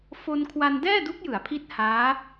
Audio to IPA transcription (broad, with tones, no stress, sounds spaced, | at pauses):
f o˧ n kʰ w a˧ n d ɛː˥˩ d u˦˥ k̚ j ɯ˩˦ a̯ pʰ i˦˥ t̚ h aː˦˥